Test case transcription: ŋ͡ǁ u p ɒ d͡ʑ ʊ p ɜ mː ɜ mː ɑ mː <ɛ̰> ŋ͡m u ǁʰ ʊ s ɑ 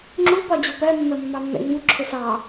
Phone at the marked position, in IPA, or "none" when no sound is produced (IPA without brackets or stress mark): ɛ̰